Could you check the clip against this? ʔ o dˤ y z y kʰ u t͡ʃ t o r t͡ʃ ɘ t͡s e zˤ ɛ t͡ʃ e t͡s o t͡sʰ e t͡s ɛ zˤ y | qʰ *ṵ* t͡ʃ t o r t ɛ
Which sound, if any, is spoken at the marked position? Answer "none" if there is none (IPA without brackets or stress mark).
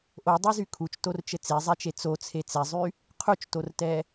u